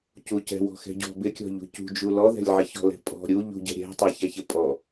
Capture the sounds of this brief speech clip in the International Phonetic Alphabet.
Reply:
cucɛ̤ wɔ̤xɛ̤ɟɔ̤ bɪkʲɔ̤ʎṳ cṳd͡ʒu lɔðɛ̤lʲʕɪ çɔ̤lɛ̤pʼɔ̤ ɾʲu ʎṳɟɛ̤ ɾʲɛ̤ tˤɛçɛçɪ pʼɔ

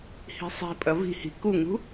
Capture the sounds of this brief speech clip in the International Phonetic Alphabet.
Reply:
hi̤sˤi̤pʼɐ vi̤hi̤ kuŋṳ

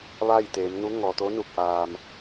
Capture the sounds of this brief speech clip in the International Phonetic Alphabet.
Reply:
ʋa˥˨jt̪eː˩˧m nu˧˥ ŋɔː˩ t̪o˧˥nu˧˩k̚ʔaː˩m

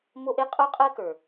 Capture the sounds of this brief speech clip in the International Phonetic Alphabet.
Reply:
mo˦ʔe˦ qʼo˦qʼɜ˦kə˞˨

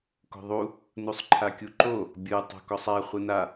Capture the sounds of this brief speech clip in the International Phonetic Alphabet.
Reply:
ko̤ðˤu | nusˤǃʰakʲuǃo | bʲɯ tˤo̤kɔsˤa χʷɯna

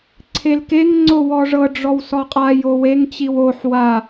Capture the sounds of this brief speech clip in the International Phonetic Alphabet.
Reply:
ǀʰelkeŋ ŋ͡ǀowɔʐɤ ɖ͡ʐɔwsɔqʼaj oweŋ t͡ɕiwoħ wa

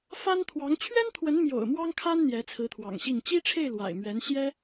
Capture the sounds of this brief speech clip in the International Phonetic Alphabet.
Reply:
fa˥nt̪ʰwɑ˧˥ŋ t͡ɕʰɥɛ˥nt̪ʰwə˧˥nmjo̰˨˩ʊ̯ mwɑ˥ŋkʰa˥n n̪jɛ˧˥t͡sʰɹ̩˧˥t̪ʰwɑ̰˨˩ŋɕi˥˩ŋ t͡ɕi˥ʈ͡ʂʰe˥˩ɪ̯ lwa̰˨˩ɪ̯mɥɛ˧˥n ɕjɛ˥

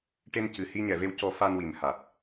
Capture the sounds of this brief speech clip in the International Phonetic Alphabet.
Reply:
ʈe˧n cɨ˨˩hi˧ɲɛ˨˩˨ve˧w cɔ˨˩˦ fa˧nwi˨˩mha˨˩t̚

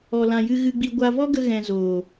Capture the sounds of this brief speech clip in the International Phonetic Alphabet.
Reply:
ɔ˨lã˨ jɨ˧ɣɨ˧ɡ͡bi˧ ɡʷa˧ vɔ˦ɡə˧ ɣɛ̃˧ zoː˨

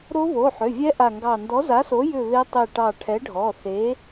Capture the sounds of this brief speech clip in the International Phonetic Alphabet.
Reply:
ɾo˦˥βo˩˧˩ħʏ˩˧˩vʲɛ˦˥ ʔa˦˨ŋɡɑ˦˨ ndɔ˨˥za˨˥so˨˥ jʏ˦˨ βe˦˥tˤe˦˨ʈɑ˦˨ ʈʰɛ˨˥ɖʱɔ˩˧˩θe˨˥

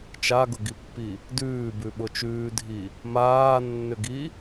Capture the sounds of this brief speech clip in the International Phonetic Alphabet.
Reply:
t͡ʃaɡʊɡipːi | dʉːbʉ ɓʊt͡ʃʉːdʱi | maːnːʏɡi

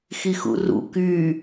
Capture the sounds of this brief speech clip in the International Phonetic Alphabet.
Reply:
xixṵrṵ ky

